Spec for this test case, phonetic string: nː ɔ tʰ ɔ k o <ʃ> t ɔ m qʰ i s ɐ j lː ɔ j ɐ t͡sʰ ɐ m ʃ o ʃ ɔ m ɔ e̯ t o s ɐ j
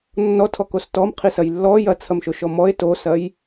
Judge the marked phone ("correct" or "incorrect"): incorrect